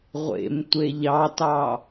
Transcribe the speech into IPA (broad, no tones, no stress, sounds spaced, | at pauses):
ʁʷ ḛ m tʷ e ʎ ɑ t ɑ